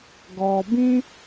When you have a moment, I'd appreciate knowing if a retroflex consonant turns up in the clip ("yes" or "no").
no